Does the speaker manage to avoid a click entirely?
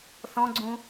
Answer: no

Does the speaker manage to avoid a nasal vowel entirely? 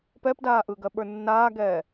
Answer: yes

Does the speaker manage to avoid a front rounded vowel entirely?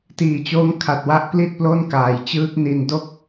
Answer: yes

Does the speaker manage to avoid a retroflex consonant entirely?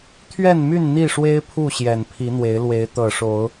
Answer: no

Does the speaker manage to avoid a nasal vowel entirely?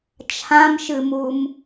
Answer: no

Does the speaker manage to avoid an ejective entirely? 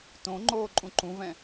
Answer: no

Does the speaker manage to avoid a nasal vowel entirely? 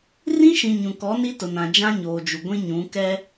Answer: no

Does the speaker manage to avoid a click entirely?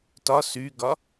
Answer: yes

